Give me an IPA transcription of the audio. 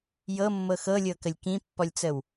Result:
j ɤ mː ɤ x ɤ lʲ ɤ k ə lʲ k ĩ pː ɔ lʲ t͡s ə w

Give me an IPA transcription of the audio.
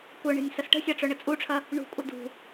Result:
kʷ œ ɳ e̤ nʲ s ɐ s ʈ ə̤ sʲ ɑ ʈ͡ʂ œ ɳ ə t͡sʼ u ʈ͡ʂʰ ɐ | ɳ ṳ kʷʼ ə d ṳ

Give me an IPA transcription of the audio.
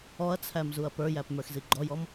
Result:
ɔ ɐ̯ t͡sʰ æ m z u ɐ̯ p ə˞ j æ p m ə˞ x z i ɡ͡ǃ ɔ j ɔ m

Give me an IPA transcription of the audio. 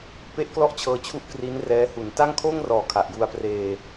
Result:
p e˥˩ ʔ k l ɔ˥˩ ʔ t͡ɕʰ ɤː˧ t͡ɕʰ u˥˩ ʔ k r i˦˥ n r ɛː˦˥ h u˨˩ n t a˥˩ ŋ kʰ oː˥˩ ŋ r ɔː˩˦ kʰ a˨˩ ʔ j u˧ a̯ p r eː˧

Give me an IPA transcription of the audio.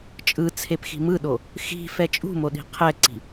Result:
t͡ʃʼ ɯ t͡sʰ e p x i̤ m ɯ ɗ o | x i̤ f ɛ t͡ʃʼ ṳ m o ɗ i̤ qʰ ɛ ǀ i̤

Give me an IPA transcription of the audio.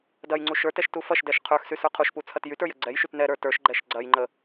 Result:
d ɐ j ŋ͡ǀ u ʃ ə˞ t ɛ ʃ t u f ɐ ʃ d ɛ ʃ qʰ ə˞ x s y s ə˞ qʰ u ʃ p u t͡sʰ ɐ t j y t ə˞ j ə ɡ͡ǀ ɛ j ʃ y t n ɛ ɾ ə˞ t ə˞ ʃ ɡ͡ǃ ɛ ʃ ɡ͡ǀ ɐ j ŋ͡ǃ ə

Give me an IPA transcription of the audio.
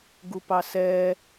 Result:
ɡ u p ɑ s ɛ

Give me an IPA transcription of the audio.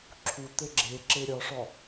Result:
ǁʰ u t̪ ɘ ɡ͡ǁ e ǁ e ɾʲ ɒ ʂ ɒ

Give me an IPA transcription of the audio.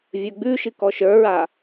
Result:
vʲ ə˞ ɡ͡b ʉ ʃ ɨ k ɔ ʃ ə˞ ɹ a

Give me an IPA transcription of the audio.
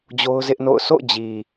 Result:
d͡ʑ o˦ ʊ̯ z ɪ˦ ʔ n o̰˦˨ ʊ̯ s o̰˦˨ ʊ̯ d͡ʑ i˨

